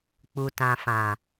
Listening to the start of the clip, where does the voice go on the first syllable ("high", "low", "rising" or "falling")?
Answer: low